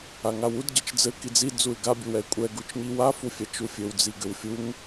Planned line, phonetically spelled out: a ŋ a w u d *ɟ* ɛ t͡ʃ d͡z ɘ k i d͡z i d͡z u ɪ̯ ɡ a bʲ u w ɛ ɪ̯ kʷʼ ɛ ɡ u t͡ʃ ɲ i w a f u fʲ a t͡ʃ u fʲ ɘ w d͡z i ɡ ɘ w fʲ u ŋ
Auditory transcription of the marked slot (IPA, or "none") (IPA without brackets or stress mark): ɟ